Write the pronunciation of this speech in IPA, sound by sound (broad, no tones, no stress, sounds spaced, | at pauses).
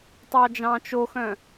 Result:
tˤ ɑ d͡ʒ ɑ̃ t͡ʃ o x œ̃